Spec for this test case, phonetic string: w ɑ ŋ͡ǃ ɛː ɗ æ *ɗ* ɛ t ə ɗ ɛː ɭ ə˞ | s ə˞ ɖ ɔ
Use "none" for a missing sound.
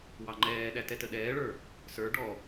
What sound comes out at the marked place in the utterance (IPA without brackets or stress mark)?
t